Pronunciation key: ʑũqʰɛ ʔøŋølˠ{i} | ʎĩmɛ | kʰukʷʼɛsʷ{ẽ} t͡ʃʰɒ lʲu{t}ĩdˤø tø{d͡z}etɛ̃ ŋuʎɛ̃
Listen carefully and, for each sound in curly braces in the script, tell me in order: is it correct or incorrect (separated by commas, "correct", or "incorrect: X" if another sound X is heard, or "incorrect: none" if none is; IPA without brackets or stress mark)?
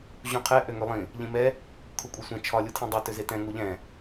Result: incorrect: ĩ, incorrect: ɛ̃, incorrect: tʰ, incorrect: z